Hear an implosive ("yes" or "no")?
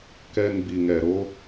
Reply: no